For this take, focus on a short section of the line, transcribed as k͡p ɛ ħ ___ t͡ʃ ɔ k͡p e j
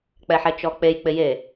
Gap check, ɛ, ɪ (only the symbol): ɛ